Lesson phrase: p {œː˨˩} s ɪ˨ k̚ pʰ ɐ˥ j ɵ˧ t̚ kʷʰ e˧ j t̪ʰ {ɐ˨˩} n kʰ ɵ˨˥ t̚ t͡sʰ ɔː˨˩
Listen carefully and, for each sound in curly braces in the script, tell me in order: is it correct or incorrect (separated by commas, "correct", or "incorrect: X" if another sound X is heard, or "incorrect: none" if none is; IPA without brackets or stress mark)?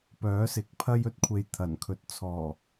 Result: incorrect: œː˨˥, correct